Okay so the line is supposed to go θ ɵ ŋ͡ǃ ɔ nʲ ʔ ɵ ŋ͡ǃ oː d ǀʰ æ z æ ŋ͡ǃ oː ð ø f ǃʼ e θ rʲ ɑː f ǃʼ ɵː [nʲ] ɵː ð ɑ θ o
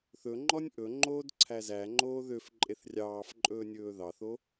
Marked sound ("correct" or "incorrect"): correct